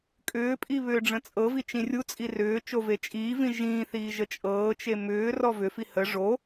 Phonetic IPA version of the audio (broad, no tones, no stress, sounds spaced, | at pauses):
kʼ ʏː pʼ i β ʏː ɖ͡ʐ ə̃ t͡sʼ ɤ v i t͡ʃ ĩ rʲ u t͡sʼ i r ʏː t͡ʃ o v e t͡ʃʼ iː v ĩ ʒ ĩː θ iː ʒ ə t͡ʃʼ ɤː t͡ʃ e m ʏː r ɔ v ʏ f i h ə ʐ o